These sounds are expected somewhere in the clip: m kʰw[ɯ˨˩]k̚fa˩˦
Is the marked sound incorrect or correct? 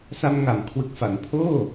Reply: correct